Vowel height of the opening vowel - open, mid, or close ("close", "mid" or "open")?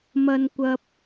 open